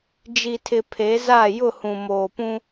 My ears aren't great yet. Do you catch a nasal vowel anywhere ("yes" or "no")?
yes